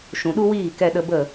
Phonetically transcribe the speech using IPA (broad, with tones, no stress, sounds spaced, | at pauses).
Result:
ʃ ũ˨ ɗ u˦ w iː˦˨ k ɛ˧ ɗ ə˧ b ə˦˨